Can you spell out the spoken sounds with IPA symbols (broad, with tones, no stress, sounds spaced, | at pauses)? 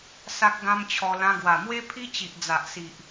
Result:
s a˦ k̚ ɡ ã˦ m t͡ɕʰ ɔ˧ l ã˧ ɡ w a˨˩ m w e˦ pʰ i˦ t͡ɕ i˨ ʔ d͡z a˨ ʔ s i˨ ʔ